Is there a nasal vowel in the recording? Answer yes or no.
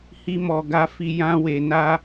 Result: yes